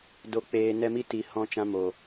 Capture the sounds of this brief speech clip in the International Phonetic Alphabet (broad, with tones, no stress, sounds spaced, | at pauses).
d o˧ k͡p eː˧ n ɛ˦ m i˦ t i˨ h ɔ̃˧ t͡ʃ ã˧ m o˨